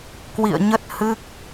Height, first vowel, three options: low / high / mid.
high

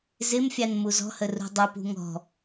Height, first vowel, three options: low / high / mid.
high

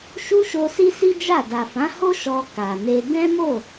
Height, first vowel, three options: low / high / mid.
high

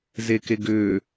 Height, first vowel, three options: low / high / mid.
mid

